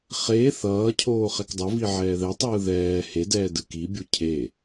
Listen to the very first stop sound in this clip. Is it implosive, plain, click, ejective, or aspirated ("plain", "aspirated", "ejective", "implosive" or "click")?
aspirated